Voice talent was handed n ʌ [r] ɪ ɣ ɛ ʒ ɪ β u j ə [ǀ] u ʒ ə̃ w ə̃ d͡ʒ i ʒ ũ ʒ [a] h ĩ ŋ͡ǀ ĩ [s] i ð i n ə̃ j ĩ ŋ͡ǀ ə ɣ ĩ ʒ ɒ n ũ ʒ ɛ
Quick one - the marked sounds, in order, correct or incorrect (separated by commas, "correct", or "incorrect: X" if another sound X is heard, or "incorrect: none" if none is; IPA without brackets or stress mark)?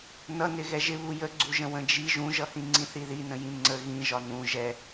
incorrect: n, incorrect: ɡ͡ǀ, incorrect: ʌ, incorrect: θ